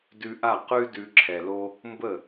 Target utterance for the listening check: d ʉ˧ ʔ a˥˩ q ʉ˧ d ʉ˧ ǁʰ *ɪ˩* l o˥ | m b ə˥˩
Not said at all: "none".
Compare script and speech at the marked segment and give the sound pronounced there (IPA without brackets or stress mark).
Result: ɛ˩